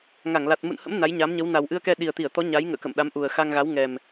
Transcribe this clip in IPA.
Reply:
ŋ a˧˩ ŋ l a˨˩ t̚ m ṵ˧˨ n h ə̰˧˥ m n a˨˦ j ɲ aː˨˦ m ɲ ə˨˦ w n a˨˩ w ʔ ɨ˧ ə̯ k ɛ˧ ɗ i˨˩ ə̯ t̪ i˧˩ ə̯ t̪ ɔ˨˦ ɲ a˨˦ j ŋ ə̰ː˧˨ k ə̰˧˨ m ɗ a˨˦ m ʔ u˨˩ ə̯ x a˧ ŋ ɣ a˨˦ w ŋ ɛ˨˩ m

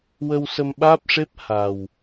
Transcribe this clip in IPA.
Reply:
w ə˧ w s ə˧ m ɓ aː˦˥ p̚ ʂ e˦˥ p̚ h a˨˩ w

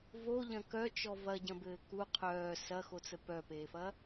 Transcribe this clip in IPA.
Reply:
v o ʎ ɐ̃ k œ t͡ʃ ɔ v ɐ ɟ ɐ̃ b ɘː k u qʰ œː s ɐ x o t͡s ə p œ p eː f ɐ

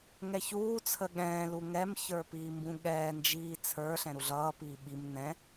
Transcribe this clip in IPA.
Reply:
ŋ ɛ ç uː t͡sʰ ə ɠ ɛ̃ː l u ŋ ɛ m ç ə˞ p iː m b ũ ɠ ɛː n d͡ʒ iː t͡sʰ ə˞ ɬ ɛ̃ ɾ u ɮ ʌː p iː ɓ i m n ɛ̃

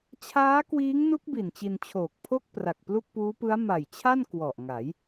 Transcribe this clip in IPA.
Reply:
t͡ɕʰ aː˦˥ k w iː˦˥ ŋ n u˦˥ k̚ b i˨˩ n t͡ɕ i˧ n t͡ɕʰ oː˨˩ k̚ pʰ o˥˩ k̚ p r a˨˩ k̚ p l u˥˩ k̚ p uː˦˥ p ɯ˦˥ a̯ m a˨˩ j t͡ɕʰ a˥˩ n k w ɔ˨˩ ʔ ŋ a˩˦ j

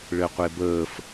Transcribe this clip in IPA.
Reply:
ɭ ɘ qʷ e b əː f

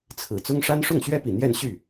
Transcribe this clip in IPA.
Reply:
t͡sʰ ɹ̩˨˩ t͡s ʊ˥ ŋ ʂ a˥ n ʂ ʊ˥˩ ŋ ɕ ɥ ɛ˥ p i˨˩ n̪ j ɛ˥˧ n ɕ y˥˩

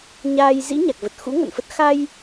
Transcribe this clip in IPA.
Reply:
ɲ aː˧ j z ḭ˧˥ ɲ a˨˩ k̚ v ə˨˩ t̚ x ṵ˧˥ ŋ ə̰˧˨ n f ə˦˥ t̚ x a˧ j

